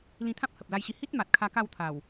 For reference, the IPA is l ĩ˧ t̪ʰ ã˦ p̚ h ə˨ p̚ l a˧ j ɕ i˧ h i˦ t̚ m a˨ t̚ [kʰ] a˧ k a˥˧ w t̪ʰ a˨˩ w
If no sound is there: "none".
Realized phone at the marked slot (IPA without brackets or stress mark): kʰ